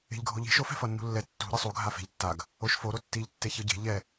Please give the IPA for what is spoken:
e̤ʎɡʱoʎi̤ ʃo fɛ̤fʌnːṳlːɛ tːṳ ɾɯsˤu ɡʱafe̤ʎ tːaɡ | oʃfo ɾotːiʎ tːeçɯɟe̤ ʎɛ

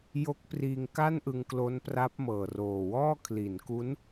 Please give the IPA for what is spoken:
jo˦˥k̚priː˧ŋ ka˥˩nʔɯ˧ŋklo˦˥npra˦˥p̚ mɤː˨˩ roː˨˩wɔː˥˩ kʰli˩˦nku˦˥n

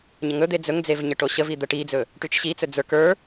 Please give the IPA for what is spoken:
ɲəŋɵd̪e d͡zɵŋd͡zev ɲəʈoɕəvi d̪əʈid͡zɵ | ʈyt͡ʃɕit͡sɵ d͡zə˞k ə˞

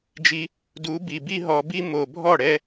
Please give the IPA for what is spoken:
d͡ʒi˧ | du˨˦ bi˨ bi˦ɦɔ˧bi˦ mo˨bʱɔ˦˨ ɽɛ˦

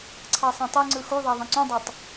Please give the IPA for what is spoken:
ǀʰɑsˤɑ̃tˤyŋ͡ǀɯ xuðˤæ ðˤẽǀũdˤɑtˤ

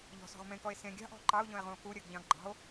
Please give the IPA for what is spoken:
ʎɔ̤ sɔ̤ʁmẽkɔe̯ sẽ ɡʲɑ̤ʔɔ̤ ǃɑo̯ʎɔ̃e̯ʁũo̯ kuɾʲɜɡʎɑ̃ɡ ɡ͡ǃɑ̤o̯

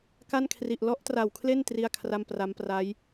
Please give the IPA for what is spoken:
ka˥˩nkʰri˨˩ʔ lɔ˦˥ʔtra˨˩wkʰle˥˩n tri˥˩a̯kʰra˥˩mpra˦˥m pra˦˥j

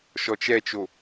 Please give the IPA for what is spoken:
ʃɔt͡ʃɛt͡ʃo

